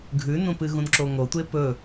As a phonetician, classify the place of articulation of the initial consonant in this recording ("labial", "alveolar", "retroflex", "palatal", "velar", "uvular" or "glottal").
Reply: velar